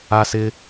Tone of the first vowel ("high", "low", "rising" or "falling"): high